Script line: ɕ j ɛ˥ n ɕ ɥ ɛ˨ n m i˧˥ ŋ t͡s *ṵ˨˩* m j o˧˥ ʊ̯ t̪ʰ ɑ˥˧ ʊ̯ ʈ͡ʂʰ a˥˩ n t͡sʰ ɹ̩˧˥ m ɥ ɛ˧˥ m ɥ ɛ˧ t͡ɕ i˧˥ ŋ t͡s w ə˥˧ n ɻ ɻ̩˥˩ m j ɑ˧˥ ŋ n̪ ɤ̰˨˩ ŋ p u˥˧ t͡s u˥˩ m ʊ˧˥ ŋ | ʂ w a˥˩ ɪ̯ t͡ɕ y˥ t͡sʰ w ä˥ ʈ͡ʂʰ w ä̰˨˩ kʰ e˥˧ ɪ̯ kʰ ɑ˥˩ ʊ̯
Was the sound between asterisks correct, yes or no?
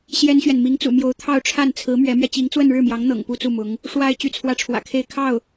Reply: yes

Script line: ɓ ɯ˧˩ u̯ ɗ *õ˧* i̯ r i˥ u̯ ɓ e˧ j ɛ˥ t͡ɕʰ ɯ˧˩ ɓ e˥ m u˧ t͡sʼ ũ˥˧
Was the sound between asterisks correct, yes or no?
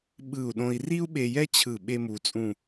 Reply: yes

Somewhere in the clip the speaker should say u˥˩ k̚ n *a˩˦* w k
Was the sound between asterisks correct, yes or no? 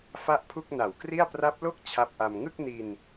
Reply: no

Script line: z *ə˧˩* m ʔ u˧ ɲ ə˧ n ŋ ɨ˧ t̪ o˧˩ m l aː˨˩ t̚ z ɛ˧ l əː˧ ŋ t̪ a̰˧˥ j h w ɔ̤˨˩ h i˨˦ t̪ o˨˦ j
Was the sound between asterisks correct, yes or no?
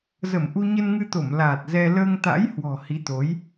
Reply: yes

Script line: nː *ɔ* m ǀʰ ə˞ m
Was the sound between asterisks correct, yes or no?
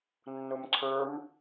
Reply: no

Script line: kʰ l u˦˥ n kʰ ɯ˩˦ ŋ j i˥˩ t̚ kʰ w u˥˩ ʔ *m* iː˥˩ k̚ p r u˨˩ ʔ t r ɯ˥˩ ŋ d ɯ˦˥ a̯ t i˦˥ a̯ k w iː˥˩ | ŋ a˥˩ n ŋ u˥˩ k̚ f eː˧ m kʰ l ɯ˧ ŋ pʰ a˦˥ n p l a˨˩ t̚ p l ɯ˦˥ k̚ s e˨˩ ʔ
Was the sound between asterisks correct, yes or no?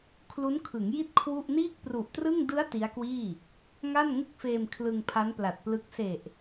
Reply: no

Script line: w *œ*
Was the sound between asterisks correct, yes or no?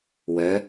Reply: yes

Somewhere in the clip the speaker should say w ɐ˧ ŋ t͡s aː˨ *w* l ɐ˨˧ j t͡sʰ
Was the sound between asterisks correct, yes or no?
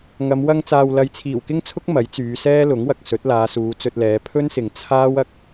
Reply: yes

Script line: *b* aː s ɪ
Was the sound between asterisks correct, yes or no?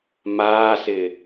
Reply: no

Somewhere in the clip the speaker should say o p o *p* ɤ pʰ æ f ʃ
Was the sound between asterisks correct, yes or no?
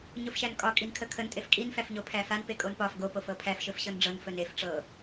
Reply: no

